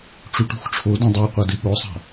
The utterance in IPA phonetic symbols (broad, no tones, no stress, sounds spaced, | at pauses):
ʈ͡ʂ u ʈ ṳ x ʈ͡ʂʰ o d õ dˤ o ə̯ qʷ a d ɨ ɠ o sˤ a̤